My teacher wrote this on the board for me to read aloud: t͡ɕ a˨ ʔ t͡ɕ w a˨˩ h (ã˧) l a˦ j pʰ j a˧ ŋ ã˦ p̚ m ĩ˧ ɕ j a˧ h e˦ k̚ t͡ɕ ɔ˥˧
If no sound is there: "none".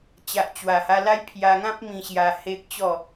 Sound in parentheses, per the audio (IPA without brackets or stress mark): a˧